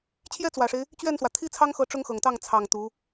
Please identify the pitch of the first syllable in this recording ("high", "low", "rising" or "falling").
high